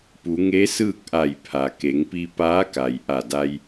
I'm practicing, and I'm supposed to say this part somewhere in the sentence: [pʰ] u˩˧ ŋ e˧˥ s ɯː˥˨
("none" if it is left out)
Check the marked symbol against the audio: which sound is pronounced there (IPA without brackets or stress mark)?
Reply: p